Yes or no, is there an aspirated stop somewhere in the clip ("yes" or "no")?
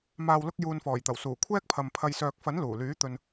yes